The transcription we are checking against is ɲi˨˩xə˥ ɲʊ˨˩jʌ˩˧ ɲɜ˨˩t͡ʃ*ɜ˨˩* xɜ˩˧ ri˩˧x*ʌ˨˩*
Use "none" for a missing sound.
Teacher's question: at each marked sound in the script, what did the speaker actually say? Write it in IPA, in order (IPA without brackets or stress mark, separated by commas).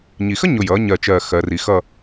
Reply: ɜ˨˩, ʌ˥˧